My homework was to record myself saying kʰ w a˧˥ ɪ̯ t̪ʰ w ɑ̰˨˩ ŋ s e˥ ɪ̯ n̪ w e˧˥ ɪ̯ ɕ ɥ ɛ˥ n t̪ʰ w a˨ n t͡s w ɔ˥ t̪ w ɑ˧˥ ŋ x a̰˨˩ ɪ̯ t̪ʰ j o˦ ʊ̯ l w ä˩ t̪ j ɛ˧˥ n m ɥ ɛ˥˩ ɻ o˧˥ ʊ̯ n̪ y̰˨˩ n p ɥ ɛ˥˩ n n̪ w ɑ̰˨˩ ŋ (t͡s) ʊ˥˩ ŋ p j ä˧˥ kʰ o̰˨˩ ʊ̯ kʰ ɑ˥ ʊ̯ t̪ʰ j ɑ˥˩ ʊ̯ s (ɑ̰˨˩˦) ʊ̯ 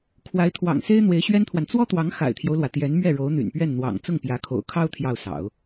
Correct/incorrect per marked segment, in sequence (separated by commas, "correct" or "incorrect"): correct, correct